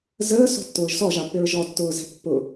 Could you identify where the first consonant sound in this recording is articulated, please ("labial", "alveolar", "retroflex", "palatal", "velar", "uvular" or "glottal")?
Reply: alveolar